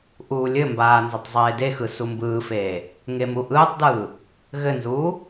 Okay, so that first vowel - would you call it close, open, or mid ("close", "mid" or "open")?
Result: close